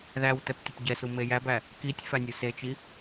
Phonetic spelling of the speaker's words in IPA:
ðæwtɛp tʲəpɟɛsu mejæbæ | kitʲ fænʲuset͡ʃi

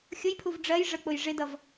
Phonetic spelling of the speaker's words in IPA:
xʲʊjpʰuv ɖ͡ʐɜj ʐək͡pʊj ʐɪdʌv

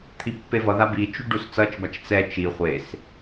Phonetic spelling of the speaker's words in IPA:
t̪ʰipːevʌða bit͡ʃu ɖust͡sʌt͡ʃbat͡ʃ t͡sɛ t͡ʃi χʷes

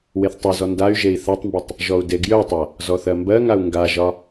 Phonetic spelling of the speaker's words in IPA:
weθtˤœzɔ nday̯ ʒei̯θatˤmbetˤ | ʒɔu̯deɡjœtˤa | zɔθɜmbɜŋau̯ ŋɡaʒɒ

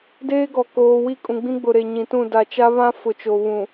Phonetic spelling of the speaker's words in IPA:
deː˦ɡɔ˨ koː˨wi˦˨kʼũ˨ ɡ͡bĩ˦ɡ͡bʊ˨ɾe˨ ɲĩ˨tũ˦˨ da˨t͡ʃa˦βã˦fʊ˨ t͡ʃo˨βũ˨

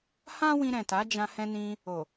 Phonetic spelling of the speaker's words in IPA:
hã˦wĩ˧ɾɛ̃˨ ta˨˦d͡ʒã˧ hɛ̃˧nĩ˧ | o˨

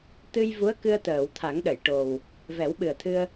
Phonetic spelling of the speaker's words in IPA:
t̪ɨ˧jvu˧˥ə̯kɨ˧ə̯ t̪əː˨˩˨wt̪ʰa˨˩˦ŋɗə˨˩˨jʈo˨˩w | vɛ˨˩˦wɓɨ˨˩ə̯t̪ʰɨ˧ə̯

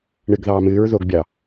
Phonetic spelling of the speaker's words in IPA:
ɳɨɡ ðɑːmɨːɹ ðoɡbʲɑ

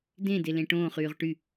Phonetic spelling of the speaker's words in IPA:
dẽ delẽʈõːχ yːʁʈy

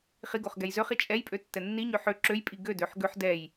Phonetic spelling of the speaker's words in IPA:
χiɡoχ ɡɛjzøχi t͡ʃʼɛjpʼø tːɛnːiɲø ħø ǁøjpʼi ɡødøħ ɡøħ dɛj

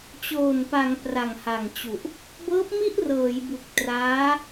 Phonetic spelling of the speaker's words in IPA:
t͡ɕoː˨˩npa˩˦ŋ pra˨˩ŋha˨˩ŋt͡ɕu˨˩ʔ | bɤː˦˥p̚mi˥˩ʔrɤː˩˦j bu˨˩k̚traː˦˥

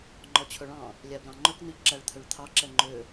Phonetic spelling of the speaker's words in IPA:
ŋ͡ǃɔt͡ɕʰɵɭɑ̃ | lʲæblɑ̃ŋ͡ǃɵk n̪yʎǁæɭt̪ʰøɭt̪ʰɑ ǁɛŋ͡ǃø

